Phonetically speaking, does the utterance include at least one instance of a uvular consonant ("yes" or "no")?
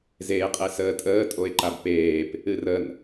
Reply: yes